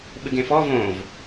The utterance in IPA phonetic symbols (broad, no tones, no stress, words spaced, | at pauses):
ɓɨɡẽfɔ võv